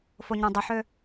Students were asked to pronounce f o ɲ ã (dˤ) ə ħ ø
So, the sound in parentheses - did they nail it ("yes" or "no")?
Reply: yes